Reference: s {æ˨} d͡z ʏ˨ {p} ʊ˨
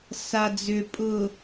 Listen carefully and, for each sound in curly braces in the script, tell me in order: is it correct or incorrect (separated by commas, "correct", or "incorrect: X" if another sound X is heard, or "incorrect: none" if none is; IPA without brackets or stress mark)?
incorrect: a˨, incorrect: pʼ